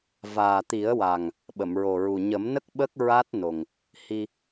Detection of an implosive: present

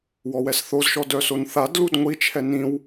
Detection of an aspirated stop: present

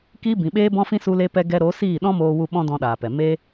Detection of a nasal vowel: present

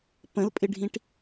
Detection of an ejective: present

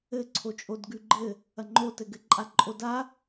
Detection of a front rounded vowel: absent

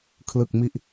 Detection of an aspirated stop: present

